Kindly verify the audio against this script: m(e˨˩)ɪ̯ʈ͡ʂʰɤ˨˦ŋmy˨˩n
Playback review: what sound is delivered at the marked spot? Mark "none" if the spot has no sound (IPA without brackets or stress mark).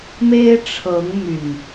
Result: e˦